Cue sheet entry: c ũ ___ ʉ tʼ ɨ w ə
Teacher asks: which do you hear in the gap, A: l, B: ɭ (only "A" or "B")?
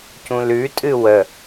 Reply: A